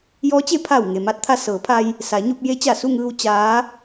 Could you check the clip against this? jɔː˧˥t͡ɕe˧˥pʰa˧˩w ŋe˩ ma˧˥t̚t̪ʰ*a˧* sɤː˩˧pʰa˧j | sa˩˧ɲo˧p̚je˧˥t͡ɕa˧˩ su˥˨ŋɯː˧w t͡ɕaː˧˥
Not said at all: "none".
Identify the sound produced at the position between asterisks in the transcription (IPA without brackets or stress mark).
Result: a˧